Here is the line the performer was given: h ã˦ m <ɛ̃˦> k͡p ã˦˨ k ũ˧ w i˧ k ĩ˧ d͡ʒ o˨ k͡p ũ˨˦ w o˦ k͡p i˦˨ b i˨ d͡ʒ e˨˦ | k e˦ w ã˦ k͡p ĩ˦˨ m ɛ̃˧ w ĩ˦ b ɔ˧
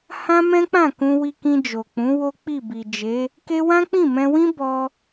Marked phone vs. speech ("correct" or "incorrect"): correct